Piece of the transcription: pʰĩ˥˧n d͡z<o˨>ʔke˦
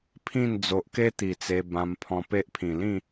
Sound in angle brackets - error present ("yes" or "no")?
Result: no